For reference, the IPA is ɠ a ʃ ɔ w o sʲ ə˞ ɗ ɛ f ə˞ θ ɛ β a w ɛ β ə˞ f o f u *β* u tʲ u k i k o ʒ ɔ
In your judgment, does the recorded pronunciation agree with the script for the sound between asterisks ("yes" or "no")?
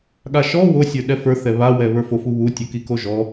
yes